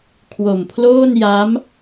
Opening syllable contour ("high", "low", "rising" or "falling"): low